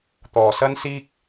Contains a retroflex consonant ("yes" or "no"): no